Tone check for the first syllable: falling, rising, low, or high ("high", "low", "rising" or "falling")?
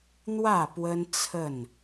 falling